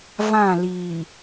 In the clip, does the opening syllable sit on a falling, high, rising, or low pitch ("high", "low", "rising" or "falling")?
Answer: falling